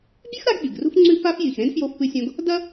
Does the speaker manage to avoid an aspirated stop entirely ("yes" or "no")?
yes